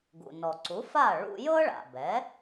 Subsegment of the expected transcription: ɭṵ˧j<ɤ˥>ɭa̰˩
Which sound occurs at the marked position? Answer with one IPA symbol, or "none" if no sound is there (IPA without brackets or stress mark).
ɤ˥